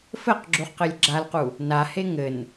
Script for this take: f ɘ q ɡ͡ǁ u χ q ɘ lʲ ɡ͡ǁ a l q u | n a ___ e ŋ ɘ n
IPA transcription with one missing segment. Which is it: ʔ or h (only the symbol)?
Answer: h